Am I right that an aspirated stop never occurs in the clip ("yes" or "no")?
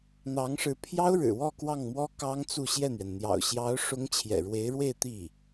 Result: no